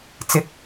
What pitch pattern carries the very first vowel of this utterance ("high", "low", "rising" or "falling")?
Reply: rising